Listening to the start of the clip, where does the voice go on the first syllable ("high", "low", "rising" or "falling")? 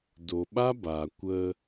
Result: low